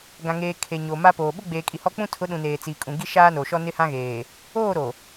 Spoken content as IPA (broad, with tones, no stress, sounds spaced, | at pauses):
ɡ ã˨ ŋ eː˨ kʰ e˨ ɲ o˨ m a˦ p oː˨ ɓ ʊ˦ ɡ͡b eː˨ kʼ i˨ h ɔ˦ k͡p ũ˦ tʰ ʊ˨˦ ɗ ũ˨ n eː˨ t͡s i˨ kʼ ũ˨ ɡ i˦ ʃ aː˦ n o˨ ʃ ɔ˦ n ɪ˦ h ã˦ ɣ eː˨ | oː˦˨ ɾ o˨